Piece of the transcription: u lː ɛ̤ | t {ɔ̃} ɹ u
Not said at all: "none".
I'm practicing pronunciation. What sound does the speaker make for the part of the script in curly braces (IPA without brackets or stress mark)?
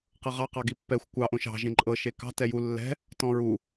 ɔ̃